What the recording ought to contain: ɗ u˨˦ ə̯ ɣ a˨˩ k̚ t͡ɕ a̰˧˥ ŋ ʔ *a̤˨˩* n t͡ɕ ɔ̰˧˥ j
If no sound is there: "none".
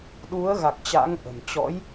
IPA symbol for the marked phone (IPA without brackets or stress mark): ə̤˨˩